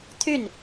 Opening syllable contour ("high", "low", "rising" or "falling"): falling